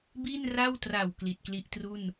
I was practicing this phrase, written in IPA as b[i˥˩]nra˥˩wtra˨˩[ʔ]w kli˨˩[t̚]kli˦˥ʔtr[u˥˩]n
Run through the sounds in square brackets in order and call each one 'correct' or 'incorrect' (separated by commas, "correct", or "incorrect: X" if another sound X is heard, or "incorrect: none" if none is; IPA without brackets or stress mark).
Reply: correct, incorrect: none, correct, correct